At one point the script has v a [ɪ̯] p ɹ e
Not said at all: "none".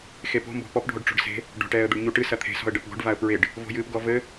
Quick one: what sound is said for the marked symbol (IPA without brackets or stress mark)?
ə̯